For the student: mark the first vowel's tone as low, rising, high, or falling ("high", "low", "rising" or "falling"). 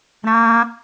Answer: high